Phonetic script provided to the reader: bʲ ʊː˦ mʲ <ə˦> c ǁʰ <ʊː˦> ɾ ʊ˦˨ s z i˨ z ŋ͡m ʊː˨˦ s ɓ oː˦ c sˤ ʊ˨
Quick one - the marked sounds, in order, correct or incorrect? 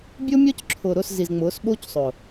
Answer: incorrect: ɔ˦, incorrect: ʊː˨

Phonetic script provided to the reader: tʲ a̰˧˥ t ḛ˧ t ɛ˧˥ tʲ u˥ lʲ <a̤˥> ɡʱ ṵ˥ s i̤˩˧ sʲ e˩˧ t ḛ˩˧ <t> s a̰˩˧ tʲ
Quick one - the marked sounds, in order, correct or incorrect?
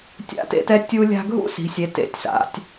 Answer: correct, incorrect: tʲ

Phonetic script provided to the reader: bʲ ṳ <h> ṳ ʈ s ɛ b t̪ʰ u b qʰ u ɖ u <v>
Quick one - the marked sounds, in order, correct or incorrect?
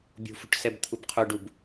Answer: incorrect: f, incorrect: b

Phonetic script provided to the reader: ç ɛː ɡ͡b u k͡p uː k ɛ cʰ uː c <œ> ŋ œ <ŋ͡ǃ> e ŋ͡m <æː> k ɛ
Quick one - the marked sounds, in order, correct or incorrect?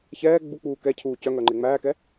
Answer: correct, correct, correct

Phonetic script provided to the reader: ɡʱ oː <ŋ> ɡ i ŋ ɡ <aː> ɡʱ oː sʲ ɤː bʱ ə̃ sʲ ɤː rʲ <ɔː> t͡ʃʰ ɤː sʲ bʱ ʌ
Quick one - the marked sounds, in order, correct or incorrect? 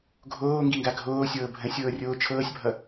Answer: correct, incorrect: a, incorrect: oː

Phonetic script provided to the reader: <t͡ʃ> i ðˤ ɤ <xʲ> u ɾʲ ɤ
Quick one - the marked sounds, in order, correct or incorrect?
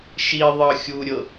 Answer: incorrect: ʃ, correct

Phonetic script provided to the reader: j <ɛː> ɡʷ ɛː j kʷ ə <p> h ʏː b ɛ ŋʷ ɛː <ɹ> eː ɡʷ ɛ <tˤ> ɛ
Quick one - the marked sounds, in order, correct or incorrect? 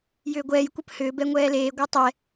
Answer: incorrect: ʏː, correct, incorrect: l, correct

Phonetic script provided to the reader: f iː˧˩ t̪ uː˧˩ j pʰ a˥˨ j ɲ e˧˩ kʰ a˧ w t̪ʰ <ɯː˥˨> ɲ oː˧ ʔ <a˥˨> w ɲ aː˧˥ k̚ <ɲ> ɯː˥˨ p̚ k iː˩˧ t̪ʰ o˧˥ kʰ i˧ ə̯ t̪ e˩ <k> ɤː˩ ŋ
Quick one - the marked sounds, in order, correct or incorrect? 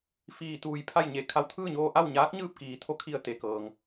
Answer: correct, correct, correct, correct

